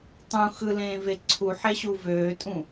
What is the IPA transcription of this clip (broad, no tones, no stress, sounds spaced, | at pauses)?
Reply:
tˤ ũ x ɯ l ẽː v e ǀʰ u ħ e ɕ u v øː tʼ ũ